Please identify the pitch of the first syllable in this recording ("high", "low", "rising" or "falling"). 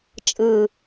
low